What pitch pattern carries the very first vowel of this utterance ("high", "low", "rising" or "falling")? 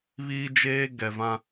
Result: high